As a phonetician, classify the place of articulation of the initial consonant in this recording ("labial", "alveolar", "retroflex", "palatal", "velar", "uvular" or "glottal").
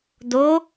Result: alveolar